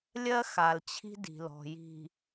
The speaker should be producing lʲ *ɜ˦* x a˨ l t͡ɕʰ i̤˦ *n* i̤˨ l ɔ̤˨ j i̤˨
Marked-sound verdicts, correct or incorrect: correct, incorrect: d

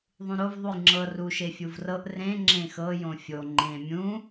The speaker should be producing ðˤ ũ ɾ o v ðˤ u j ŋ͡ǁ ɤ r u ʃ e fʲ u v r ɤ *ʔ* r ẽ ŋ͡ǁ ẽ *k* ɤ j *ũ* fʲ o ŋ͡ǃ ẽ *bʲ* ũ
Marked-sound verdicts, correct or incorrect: correct, incorrect: x, incorrect: õ, incorrect: mʲ

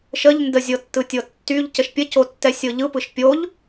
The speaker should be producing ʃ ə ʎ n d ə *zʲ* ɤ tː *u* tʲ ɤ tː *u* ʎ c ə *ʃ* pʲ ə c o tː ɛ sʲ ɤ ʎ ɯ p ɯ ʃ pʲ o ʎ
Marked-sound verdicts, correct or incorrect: correct, incorrect: ɯ, incorrect: y, correct

